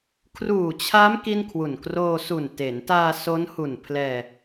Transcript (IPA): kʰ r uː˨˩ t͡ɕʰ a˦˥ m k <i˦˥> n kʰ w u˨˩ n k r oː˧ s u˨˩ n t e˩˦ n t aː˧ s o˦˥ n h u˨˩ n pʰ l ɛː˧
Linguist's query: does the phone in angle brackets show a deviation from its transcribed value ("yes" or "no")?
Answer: yes